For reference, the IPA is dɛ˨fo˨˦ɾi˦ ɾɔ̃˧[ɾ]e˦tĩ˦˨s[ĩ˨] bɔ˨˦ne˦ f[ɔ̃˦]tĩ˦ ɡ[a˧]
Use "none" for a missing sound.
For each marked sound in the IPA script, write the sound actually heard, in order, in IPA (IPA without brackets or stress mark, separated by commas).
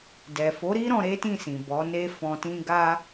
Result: ɾ, ĩ˨, ɔ̃˧, a˦